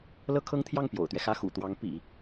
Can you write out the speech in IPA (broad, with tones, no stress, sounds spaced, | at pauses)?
l ɤ˥ kʰ ɤ˥ ŋ t̪ʰ j ɑ˥˩ ŋ p j o̰˨˩ ʊ̯ t̪ ɥ ɛ˦ x ä˥ x ṵ˨˩ t̪ w ɑ˧˥ ŋ p ḭ˨˩˦